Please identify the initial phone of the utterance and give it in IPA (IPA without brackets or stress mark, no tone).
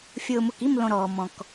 fʲ